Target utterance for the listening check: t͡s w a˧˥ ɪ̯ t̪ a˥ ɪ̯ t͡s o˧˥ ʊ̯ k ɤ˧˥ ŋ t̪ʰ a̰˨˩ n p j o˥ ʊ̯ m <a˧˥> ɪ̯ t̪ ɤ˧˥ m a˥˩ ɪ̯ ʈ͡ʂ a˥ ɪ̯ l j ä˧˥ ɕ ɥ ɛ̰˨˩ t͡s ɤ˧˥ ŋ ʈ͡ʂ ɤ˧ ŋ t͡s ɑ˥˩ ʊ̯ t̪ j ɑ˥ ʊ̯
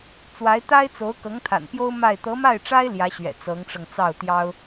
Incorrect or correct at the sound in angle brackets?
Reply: incorrect: a˥˩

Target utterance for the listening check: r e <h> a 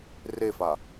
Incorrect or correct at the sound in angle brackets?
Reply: incorrect: f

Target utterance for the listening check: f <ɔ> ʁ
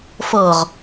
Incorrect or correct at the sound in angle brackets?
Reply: incorrect: ɤ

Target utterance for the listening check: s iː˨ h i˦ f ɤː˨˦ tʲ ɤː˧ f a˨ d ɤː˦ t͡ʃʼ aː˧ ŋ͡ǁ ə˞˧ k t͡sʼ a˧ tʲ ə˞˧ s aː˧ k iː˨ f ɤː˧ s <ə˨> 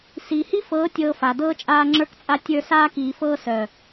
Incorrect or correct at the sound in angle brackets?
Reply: incorrect: œ˨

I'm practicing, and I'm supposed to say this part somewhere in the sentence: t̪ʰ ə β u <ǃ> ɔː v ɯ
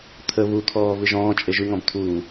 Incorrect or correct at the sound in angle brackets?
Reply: incorrect: t̪ʰ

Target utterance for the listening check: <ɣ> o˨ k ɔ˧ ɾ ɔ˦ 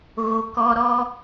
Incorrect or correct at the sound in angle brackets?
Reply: correct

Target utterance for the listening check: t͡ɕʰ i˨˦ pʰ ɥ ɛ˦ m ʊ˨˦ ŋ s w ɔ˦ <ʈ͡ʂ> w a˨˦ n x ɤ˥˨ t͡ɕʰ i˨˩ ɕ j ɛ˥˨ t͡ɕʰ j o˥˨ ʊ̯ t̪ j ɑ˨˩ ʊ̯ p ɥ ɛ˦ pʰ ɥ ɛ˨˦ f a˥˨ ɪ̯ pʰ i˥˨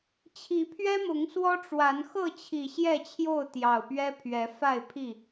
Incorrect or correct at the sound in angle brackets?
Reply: correct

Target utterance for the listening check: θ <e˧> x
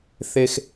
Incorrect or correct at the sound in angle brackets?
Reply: correct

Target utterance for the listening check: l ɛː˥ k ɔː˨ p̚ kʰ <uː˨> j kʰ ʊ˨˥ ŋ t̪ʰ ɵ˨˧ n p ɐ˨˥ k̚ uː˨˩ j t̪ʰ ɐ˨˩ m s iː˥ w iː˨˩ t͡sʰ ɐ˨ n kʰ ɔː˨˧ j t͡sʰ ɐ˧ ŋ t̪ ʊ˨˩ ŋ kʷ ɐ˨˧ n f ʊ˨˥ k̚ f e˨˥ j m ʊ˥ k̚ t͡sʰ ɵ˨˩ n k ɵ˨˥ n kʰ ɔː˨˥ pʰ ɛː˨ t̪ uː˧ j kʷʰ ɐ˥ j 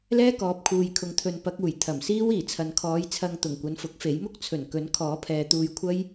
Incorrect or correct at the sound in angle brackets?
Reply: correct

